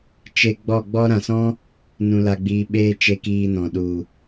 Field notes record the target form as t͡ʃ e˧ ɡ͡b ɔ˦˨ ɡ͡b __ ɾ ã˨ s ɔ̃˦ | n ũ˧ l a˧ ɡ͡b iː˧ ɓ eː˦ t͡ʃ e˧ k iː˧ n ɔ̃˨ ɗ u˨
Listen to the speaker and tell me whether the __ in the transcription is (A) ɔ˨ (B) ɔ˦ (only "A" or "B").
B